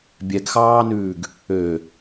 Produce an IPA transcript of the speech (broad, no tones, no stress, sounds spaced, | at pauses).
bʲ ɛ ɡ x ɑː n ʉː ɡ | ø